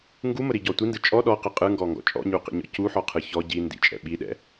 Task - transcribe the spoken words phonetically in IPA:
ŋɡuməɾiɟɔ tʷindɯ t͡ʃʼɔ ɗɔqə qʼɯŋɡɔŋɡɔ̰ t͡ʃʼɔ̰ɲuqḭɲɔ̰ cuħɔqʰɯ çɔ ɟi ndḭt͡ʃʼɛ̰ ɓiɗɛ̰

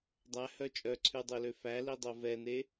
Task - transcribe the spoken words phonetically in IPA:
dˤæhœ t͡ʃʼœǀʰʉdˤølø fælidˤo vɛne

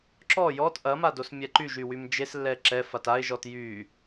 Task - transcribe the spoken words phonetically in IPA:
ǁɔ jɔt ʔɐmados mʲɛǃyʒ ywymd͡ʒes lːɛǁɛfat aɪ̯ʒɔt jy

